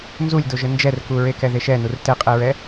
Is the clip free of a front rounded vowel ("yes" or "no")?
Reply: yes